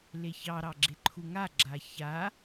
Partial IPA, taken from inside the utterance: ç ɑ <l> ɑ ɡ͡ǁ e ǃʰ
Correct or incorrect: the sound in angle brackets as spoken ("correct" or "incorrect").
incorrect